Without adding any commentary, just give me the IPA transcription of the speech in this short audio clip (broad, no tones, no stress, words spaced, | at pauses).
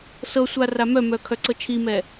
sɤsʷa ramœmœ kʰœǀɤt͡ʃʰimɛ